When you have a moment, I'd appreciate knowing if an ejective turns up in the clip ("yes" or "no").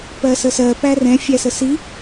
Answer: no